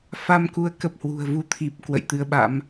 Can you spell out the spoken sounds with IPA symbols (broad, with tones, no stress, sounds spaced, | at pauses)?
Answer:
f a˧ m k u˨˦ ə̯ k ə˨˩ p̚ h w ṳ˨˩ ə̯ v u˧ t̪ʰ i˨˩ p̚ k w ə̰˧˨ j t̪ ɨ˧ ə̯ ɓ a̰˧˥ m